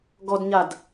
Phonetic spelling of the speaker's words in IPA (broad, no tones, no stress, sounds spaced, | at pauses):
ɡ ɔ d ɲ a d